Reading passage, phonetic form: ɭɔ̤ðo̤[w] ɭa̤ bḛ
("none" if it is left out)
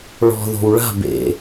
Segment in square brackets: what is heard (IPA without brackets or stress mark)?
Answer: w